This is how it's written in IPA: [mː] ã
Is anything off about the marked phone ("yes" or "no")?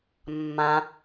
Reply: no